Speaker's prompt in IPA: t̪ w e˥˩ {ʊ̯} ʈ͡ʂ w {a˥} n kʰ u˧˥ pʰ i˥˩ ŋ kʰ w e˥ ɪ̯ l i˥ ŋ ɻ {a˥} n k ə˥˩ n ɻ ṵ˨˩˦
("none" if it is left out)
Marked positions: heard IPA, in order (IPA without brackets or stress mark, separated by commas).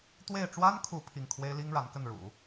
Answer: ɪ̯, a˥, a˧˥